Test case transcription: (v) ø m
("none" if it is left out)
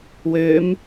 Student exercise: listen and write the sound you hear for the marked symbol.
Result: w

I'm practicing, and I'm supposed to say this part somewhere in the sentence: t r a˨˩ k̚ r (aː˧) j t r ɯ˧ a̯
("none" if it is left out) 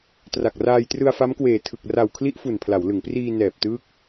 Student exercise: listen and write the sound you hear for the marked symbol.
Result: aː˧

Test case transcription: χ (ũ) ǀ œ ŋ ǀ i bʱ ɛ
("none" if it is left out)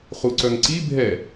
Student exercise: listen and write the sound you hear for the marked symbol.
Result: u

